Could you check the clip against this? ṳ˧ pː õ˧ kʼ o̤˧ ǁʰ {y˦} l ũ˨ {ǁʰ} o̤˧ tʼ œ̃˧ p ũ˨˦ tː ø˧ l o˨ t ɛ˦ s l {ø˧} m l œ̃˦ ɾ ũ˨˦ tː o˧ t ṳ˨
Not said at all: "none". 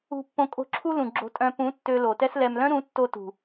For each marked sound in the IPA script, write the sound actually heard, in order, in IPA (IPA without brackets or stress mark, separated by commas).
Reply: u˦, ɡ͡ǁ, ɛ˧